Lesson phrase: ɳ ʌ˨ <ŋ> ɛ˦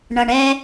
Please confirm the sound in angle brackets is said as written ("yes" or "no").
no